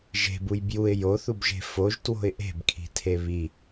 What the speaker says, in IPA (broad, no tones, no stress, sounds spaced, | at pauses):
ʒ e̤ b u j b j u ɪ̯ j o θ u b ʒ e̤ f o ʒ t w o̤ ɪ̯ ʔ e̤ b kʰ i̤ tʰ e β i